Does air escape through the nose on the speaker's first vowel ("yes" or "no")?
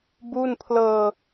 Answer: no